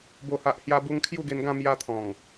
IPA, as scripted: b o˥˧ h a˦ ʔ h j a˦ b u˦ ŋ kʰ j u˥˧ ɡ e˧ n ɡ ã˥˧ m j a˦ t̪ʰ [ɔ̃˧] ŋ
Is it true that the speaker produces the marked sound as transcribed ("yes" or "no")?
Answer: no